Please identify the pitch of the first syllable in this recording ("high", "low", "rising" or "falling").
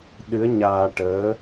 rising